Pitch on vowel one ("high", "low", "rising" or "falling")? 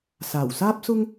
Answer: low